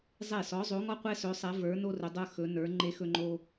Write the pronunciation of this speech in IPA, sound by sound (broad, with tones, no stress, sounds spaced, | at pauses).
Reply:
zˤ e˥˩ s ɔ˨˥ zˤ o˨˥ ŋ ɔ˥ qʷ ɛ˥ s ɵ˨˥ sˤ ɛ˨˥ v ə˞˨˥ n o˥ r ɵ˨˥ dˤ ə˞˥ x ɵ˨˥ n ə˞˨˥ ŋ͡ǃ e˥ x ɵ˥ ŋ͡ǃ o˥